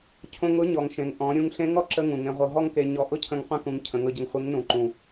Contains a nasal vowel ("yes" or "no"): yes